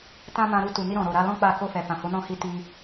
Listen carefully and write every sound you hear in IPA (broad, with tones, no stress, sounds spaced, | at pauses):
t ã˦ m ã˧ ɾ u˧ t u˨ n i˧ ɾ ɔ̃˨ ɾ o˨ ɾ a˧ l ɔ̃˦ k͡p a˦˨ k o˧ f ɛ˨ f ã˨ h o˨˦ n ɔ̃˦˨ h i˧ t i˧